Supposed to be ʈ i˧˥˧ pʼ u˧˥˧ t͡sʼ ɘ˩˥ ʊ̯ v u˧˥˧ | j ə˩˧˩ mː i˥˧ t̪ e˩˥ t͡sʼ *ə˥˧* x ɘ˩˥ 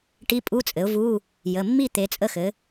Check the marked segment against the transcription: correct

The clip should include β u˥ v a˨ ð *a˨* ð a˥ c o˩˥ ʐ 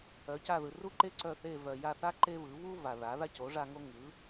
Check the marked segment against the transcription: incorrect: a˩˥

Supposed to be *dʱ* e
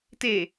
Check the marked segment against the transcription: incorrect: t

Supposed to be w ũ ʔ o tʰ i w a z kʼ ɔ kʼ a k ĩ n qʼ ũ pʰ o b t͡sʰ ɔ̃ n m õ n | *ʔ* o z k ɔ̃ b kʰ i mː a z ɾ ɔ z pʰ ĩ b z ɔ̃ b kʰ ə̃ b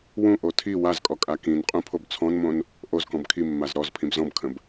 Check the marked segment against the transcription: correct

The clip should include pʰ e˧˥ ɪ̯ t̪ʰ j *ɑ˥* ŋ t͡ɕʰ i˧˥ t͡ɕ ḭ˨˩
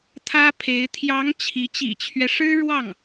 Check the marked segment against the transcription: incorrect: ɑ˧˥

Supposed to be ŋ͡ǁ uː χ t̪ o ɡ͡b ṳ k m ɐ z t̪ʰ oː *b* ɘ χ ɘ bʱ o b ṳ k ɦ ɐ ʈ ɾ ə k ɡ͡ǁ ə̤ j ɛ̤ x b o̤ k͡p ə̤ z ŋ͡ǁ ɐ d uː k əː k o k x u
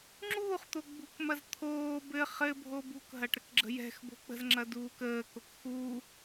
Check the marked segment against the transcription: correct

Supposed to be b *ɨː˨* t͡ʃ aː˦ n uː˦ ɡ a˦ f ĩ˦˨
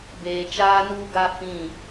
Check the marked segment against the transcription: incorrect: eː˨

